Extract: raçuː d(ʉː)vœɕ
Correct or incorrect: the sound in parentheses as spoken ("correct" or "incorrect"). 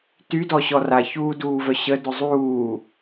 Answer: incorrect